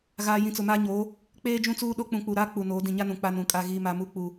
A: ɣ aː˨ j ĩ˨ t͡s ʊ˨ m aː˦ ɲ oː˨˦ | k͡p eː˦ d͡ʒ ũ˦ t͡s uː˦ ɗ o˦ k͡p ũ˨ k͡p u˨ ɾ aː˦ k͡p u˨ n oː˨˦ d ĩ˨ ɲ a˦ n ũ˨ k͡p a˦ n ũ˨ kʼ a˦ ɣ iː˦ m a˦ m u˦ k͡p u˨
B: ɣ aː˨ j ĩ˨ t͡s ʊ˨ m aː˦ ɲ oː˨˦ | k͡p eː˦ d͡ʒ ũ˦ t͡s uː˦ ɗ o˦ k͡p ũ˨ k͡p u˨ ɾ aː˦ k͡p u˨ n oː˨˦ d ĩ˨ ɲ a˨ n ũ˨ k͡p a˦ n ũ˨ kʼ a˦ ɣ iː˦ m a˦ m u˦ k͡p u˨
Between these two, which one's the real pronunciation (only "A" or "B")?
A